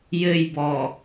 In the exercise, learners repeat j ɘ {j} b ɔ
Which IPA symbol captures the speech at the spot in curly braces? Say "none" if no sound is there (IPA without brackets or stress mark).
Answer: j